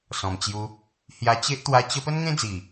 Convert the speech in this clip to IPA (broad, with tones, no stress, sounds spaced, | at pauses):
s ɔ̃˨˩ m t͡ɕ j u˧ | h j a˧ t͡ɕ e˦ ʔ t̪ w a˦ t͡ɕ ə˦ p ə˦ n ŋ ẽ˦ d͡z i˨˩